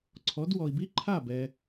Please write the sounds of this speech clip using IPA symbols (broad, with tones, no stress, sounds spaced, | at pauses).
ǀʰ ɔ˩˥ d w ɔ˩ i̯ b i˦˥ ǃʰ a˥˩ b ɛ˩